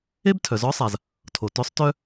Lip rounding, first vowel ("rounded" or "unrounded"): unrounded